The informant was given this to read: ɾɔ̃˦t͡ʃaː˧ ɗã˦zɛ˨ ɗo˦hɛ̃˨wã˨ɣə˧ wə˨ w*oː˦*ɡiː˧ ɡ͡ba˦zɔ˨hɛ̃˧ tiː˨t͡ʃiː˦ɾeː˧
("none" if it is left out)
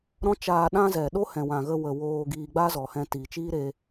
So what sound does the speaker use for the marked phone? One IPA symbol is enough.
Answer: oː˧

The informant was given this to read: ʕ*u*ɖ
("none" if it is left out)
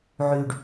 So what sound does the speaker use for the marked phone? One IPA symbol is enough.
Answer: y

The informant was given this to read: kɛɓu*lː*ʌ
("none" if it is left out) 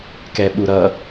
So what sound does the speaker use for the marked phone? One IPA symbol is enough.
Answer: ɾ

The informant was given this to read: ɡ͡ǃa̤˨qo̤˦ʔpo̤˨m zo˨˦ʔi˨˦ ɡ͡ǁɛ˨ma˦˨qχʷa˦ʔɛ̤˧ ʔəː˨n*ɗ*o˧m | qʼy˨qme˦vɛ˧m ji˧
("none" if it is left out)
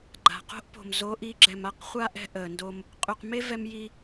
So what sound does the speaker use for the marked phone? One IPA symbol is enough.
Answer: d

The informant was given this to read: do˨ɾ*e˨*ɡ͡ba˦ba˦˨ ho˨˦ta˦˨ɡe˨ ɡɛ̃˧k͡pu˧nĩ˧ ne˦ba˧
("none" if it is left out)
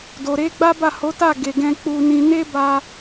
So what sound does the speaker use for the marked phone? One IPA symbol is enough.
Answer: e˨˦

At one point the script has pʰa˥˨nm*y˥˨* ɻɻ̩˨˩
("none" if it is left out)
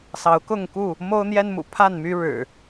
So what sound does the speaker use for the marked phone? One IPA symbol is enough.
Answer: y˦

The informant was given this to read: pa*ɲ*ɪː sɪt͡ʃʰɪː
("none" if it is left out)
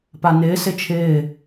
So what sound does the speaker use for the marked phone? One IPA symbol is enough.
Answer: n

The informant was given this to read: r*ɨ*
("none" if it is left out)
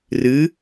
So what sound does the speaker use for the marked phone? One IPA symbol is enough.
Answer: ɨ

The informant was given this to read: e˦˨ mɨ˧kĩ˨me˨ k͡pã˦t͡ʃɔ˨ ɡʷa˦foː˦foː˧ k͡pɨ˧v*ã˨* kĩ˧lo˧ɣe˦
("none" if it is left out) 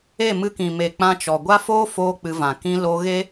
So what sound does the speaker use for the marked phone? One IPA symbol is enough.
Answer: ã˨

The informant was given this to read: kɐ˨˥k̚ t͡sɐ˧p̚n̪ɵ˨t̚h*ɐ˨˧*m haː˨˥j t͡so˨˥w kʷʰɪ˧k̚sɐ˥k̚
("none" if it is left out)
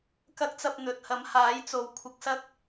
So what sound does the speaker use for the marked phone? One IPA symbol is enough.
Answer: ɐ˨˥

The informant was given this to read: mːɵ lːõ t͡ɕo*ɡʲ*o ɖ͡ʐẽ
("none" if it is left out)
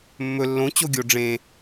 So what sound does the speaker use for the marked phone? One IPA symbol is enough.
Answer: ɡʲ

